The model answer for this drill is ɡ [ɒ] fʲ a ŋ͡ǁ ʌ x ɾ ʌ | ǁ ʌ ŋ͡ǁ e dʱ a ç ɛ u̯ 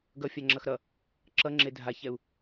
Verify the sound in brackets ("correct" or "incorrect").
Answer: incorrect